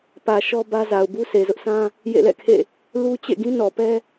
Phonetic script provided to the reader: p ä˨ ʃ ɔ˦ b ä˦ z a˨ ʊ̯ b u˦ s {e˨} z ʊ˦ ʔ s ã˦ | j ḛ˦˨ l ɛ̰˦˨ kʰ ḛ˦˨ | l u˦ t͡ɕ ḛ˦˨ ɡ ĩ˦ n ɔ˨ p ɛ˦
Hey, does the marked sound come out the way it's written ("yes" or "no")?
yes